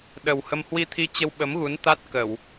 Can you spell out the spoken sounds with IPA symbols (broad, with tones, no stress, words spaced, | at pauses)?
ɗə˨˩whə˧m hwi˧t̪ʰi˧ t͡ɕə˧wɓə˨˦mɣu˨˦nt̪a˦˥t̚ kə˧˩˨w